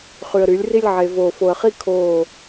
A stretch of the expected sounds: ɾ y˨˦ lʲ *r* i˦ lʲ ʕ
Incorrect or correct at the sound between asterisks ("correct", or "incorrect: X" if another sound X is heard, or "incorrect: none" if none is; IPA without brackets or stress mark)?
correct